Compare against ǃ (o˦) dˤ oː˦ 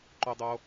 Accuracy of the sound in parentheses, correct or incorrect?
correct